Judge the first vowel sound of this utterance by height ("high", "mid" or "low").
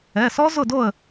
mid